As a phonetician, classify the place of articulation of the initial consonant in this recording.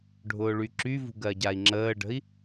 retroflex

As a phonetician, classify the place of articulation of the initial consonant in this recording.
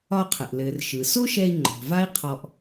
uvular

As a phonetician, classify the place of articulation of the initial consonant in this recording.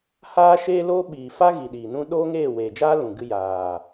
glottal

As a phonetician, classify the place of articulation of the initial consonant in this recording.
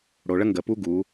retroflex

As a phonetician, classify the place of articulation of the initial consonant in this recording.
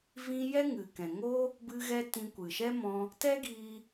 labial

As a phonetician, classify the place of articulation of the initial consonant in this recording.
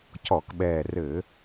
palatal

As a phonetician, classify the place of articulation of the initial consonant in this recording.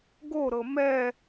velar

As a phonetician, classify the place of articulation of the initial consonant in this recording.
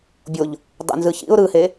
labial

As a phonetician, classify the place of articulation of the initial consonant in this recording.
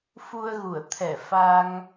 labial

